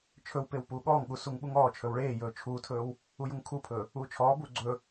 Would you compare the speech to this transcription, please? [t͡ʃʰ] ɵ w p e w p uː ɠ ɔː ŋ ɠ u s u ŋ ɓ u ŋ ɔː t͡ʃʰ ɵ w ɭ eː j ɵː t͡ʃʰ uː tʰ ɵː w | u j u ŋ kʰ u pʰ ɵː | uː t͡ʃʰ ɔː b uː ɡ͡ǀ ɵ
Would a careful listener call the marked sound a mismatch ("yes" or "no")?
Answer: no